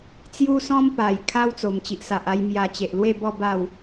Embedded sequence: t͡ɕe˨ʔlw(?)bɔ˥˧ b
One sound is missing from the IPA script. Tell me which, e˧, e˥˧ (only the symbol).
e˥˧